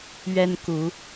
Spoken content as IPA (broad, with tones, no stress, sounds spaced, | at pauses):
ɥ ɛ˦ n k u˨˦